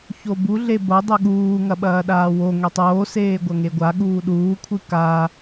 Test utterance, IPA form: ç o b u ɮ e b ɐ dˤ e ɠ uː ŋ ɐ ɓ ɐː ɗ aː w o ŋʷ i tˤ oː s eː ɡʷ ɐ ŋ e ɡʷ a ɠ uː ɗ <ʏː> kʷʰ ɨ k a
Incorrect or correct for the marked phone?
incorrect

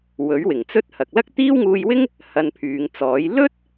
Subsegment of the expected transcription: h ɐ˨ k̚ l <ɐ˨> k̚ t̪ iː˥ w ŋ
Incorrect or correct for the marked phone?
incorrect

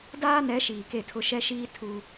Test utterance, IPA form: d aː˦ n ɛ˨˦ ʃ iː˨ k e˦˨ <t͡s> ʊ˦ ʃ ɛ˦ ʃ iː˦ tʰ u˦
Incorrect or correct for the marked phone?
incorrect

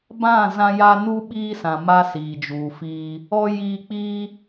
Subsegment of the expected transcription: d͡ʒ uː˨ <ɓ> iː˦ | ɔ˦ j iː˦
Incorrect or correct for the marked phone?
incorrect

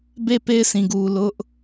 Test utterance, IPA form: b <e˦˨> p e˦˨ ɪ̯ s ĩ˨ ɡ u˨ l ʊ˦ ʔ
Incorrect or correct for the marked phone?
correct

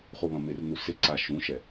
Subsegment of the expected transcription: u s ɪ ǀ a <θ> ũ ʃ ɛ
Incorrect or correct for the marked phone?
incorrect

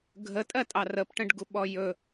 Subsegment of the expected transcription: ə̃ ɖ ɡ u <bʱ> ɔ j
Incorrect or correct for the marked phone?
incorrect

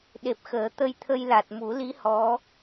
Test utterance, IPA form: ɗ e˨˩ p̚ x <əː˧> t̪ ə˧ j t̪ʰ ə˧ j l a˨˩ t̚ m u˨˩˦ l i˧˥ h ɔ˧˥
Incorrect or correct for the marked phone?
incorrect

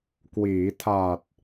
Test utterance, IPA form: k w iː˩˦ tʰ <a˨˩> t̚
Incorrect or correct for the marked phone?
correct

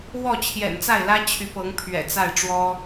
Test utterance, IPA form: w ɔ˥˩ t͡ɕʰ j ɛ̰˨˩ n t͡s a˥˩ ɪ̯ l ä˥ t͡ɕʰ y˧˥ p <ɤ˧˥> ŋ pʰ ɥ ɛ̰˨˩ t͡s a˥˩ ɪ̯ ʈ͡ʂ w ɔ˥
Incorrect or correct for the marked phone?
correct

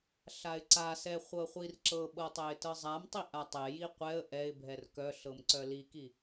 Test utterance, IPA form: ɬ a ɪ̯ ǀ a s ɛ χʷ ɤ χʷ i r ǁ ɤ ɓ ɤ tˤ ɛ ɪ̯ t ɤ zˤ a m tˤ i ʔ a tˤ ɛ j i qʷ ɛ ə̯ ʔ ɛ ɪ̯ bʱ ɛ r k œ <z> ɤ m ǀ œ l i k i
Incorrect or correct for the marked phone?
incorrect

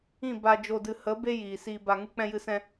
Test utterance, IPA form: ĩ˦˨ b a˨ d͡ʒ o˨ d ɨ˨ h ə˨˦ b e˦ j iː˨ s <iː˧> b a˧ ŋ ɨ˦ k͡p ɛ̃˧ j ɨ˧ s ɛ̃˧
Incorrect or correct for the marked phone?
correct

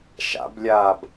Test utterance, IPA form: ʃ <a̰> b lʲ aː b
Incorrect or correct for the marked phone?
correct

